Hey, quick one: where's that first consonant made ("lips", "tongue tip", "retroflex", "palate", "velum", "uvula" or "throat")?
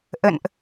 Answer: throat